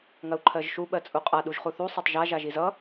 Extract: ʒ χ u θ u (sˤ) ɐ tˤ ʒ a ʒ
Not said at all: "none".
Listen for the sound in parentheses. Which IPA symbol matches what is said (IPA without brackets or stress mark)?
sˤ